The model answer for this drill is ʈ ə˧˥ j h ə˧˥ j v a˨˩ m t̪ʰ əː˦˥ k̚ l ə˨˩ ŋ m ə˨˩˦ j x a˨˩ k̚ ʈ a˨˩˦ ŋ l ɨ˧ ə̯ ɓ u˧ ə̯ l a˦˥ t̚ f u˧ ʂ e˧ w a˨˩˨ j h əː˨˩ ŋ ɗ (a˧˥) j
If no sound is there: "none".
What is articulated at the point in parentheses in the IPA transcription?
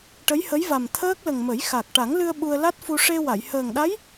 a˧˥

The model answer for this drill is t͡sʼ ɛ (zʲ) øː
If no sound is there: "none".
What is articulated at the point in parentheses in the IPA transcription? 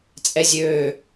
zʲ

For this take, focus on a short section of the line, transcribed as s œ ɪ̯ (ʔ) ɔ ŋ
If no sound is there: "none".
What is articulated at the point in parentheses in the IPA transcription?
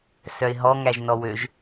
ɦ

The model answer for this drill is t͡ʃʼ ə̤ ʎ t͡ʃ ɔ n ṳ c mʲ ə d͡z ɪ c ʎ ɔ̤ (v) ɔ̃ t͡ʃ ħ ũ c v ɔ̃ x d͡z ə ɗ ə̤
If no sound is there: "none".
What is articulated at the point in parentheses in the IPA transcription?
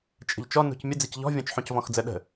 vʲ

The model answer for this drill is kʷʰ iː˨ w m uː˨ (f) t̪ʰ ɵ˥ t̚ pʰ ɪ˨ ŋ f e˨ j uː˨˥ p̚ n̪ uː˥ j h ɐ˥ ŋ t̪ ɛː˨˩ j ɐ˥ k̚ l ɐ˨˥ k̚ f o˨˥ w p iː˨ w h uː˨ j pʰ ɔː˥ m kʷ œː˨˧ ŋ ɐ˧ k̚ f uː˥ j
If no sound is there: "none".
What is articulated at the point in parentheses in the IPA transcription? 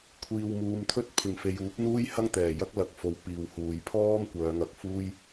m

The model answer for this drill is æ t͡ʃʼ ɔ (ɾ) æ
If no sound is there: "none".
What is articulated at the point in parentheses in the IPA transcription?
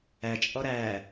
ɾ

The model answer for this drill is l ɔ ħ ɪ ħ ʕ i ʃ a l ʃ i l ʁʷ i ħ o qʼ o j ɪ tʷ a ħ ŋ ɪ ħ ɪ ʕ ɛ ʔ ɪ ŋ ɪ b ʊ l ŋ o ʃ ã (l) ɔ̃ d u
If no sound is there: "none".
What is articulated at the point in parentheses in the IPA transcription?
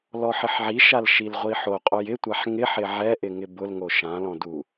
l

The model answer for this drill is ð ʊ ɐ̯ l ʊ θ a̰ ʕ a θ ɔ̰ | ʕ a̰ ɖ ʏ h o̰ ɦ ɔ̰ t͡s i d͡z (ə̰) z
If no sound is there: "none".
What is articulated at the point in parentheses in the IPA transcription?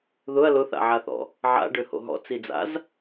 a̰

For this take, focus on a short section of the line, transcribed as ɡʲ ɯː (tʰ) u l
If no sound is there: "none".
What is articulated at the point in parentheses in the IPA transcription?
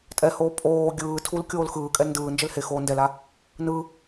tʰ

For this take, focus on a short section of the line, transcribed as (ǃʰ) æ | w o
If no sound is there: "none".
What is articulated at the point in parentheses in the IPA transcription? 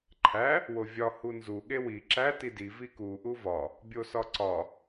ǃʰ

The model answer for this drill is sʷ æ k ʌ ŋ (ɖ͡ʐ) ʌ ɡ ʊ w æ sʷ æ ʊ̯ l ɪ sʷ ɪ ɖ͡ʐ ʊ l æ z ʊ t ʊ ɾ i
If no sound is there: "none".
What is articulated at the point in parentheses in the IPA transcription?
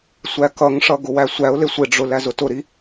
ʂ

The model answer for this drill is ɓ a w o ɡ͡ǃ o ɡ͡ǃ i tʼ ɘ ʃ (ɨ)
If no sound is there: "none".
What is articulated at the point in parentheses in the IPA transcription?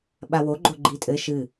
ɨ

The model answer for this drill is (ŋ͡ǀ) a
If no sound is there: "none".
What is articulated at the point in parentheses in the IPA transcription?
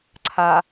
ǀʰ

